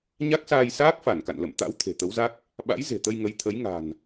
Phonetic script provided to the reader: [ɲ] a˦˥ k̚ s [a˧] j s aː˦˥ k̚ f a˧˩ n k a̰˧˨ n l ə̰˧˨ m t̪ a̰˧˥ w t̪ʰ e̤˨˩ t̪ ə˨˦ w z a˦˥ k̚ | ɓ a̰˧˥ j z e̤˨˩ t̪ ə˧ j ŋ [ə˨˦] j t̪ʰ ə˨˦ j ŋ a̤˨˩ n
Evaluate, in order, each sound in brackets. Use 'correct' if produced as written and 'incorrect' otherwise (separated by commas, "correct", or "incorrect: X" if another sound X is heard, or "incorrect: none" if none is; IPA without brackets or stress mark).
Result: correct, incorrect: aː˧, correct